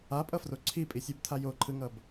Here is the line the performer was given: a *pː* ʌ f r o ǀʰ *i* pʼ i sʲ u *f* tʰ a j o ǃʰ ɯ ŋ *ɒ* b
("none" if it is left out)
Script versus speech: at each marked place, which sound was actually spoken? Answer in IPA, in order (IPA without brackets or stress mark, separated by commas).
pʼ, i, b, ʌ